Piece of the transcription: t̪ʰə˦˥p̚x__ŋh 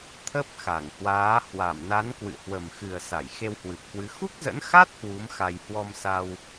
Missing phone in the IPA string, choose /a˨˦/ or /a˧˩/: a˧˩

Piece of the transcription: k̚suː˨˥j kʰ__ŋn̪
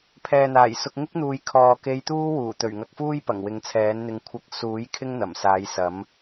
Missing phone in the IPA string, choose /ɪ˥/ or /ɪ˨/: ɪ˥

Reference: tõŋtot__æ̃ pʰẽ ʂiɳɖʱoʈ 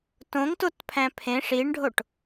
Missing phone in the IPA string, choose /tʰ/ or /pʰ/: pʰ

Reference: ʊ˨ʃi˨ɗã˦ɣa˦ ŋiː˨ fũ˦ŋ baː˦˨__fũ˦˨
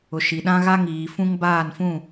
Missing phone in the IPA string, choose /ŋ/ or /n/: n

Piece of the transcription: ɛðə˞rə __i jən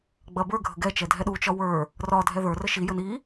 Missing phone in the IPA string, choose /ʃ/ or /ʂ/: ʃ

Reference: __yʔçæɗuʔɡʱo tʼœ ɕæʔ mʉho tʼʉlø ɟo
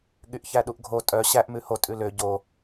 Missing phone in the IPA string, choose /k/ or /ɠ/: ɠ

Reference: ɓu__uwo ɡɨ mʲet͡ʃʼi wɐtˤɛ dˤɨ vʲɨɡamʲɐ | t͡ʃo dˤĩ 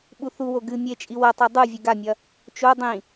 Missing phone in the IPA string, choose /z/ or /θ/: θ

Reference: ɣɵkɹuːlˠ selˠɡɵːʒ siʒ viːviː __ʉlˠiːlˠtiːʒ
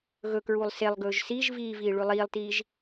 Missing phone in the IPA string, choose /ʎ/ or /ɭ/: ɭ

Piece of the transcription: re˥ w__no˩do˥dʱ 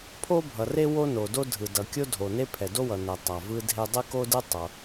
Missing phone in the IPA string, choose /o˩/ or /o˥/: o˥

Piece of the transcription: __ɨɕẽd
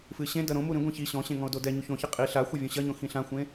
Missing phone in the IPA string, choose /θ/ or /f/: f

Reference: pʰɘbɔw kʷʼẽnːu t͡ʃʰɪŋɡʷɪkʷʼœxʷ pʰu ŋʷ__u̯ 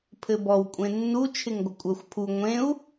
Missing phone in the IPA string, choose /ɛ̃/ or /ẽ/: ẽ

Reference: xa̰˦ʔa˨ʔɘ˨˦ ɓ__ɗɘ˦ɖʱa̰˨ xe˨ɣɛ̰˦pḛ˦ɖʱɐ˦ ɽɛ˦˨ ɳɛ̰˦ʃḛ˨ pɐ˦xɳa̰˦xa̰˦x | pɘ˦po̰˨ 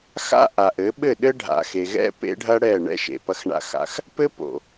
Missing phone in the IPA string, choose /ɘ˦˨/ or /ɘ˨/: ɘ˦˨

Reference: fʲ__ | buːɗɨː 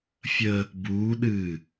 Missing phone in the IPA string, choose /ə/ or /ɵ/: ə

